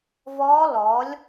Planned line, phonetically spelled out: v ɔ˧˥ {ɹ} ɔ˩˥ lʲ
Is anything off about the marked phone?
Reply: yes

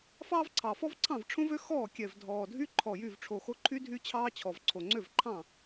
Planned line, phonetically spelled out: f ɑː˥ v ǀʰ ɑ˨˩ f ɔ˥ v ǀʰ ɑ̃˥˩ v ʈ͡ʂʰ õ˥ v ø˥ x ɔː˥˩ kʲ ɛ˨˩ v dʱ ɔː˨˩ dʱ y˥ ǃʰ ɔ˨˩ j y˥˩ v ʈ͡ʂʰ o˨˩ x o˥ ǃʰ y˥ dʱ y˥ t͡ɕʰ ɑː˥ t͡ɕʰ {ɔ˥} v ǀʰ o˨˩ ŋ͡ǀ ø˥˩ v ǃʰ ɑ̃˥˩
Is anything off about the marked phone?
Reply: yes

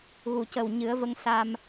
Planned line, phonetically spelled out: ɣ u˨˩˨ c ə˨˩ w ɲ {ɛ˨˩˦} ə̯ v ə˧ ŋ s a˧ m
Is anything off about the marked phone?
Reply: yes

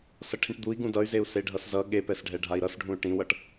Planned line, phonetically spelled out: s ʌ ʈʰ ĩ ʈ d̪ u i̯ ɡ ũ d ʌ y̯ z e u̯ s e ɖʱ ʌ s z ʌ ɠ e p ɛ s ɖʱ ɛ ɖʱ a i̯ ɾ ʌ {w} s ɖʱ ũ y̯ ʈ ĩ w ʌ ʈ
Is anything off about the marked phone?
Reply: yes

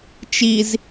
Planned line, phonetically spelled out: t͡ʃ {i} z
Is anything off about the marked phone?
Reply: no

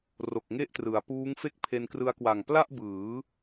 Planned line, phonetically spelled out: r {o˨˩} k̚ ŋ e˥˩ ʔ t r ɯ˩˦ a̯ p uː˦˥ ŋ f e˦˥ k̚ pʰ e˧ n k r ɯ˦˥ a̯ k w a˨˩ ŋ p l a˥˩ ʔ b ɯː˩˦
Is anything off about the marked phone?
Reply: no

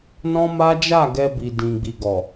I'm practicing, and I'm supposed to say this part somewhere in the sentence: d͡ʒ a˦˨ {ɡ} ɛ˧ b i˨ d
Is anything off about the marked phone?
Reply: no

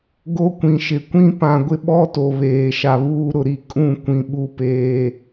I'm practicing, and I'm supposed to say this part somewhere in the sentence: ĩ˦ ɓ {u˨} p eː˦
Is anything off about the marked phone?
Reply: yes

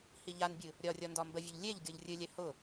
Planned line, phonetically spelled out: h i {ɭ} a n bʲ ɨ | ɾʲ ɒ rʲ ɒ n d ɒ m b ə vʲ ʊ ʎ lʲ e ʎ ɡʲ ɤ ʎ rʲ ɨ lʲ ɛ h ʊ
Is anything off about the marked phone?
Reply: yes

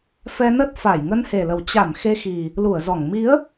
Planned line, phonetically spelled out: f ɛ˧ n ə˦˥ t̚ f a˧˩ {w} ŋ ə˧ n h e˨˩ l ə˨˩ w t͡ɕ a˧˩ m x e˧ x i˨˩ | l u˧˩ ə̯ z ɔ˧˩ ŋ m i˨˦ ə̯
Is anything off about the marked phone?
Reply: yes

